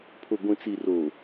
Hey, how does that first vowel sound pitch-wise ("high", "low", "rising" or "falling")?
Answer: low